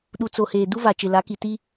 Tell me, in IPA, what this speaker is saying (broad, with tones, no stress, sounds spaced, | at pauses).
ɗ u˨ t͡s o˨ h eː˨ d u˦ v a˨ t͡ʃ ɪ˨ l a˨˦ k i˨ t i˦